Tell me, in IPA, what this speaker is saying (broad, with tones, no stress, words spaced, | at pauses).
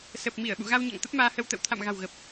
sə˨˩p̚mi˧˩ə̯ ɓṵ˧˨ɣa˧w ɲa̰˧˨ŋt̪ə˦˥p̚maː˧hə˧w t̪ə̰˧˨wt̪ʰa̰˧˨m ɣa̤˨˩w ɣə˨˩p̚